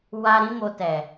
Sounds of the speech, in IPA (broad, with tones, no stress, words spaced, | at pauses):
wa˦ ɾĩ˦mo˧tɛ˨